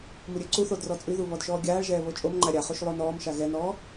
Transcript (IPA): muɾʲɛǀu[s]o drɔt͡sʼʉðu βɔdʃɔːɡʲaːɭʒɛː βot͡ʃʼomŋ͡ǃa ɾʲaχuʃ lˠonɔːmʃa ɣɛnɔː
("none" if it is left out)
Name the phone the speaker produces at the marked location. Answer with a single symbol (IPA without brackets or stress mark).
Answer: θ